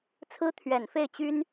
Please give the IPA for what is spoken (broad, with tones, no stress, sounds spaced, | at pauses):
t͡sʰ ɹ̩˥ t̪ʰ ɥ ɛ˨˩ n f e˥˩ ɪ̯ t͡ɕ y˥ n